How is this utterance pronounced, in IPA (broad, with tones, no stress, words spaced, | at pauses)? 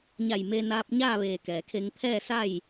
ɲa˧˩jme˧ naː˧p̚ɲaː˥˨ʋeː˧˩kɛː˩ kʰe˧ŋpʰɛː˥˨sa˥˨j